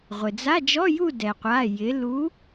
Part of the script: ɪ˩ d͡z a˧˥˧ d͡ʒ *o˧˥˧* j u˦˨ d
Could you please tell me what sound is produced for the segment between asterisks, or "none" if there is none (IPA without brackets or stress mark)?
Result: ɔ˧˥˧